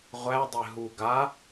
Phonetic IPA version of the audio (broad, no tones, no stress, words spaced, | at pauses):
ʁʷæ dˤeɦu ɡa